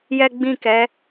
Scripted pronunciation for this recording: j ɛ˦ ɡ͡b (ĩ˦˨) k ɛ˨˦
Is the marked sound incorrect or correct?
correct